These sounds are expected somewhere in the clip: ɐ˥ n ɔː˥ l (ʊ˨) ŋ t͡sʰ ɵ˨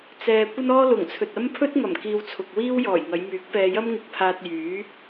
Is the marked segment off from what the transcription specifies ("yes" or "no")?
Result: yes